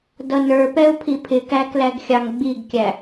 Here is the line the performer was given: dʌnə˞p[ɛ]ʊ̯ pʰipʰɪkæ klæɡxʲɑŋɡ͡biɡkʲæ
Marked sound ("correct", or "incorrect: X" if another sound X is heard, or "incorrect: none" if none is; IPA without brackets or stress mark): correct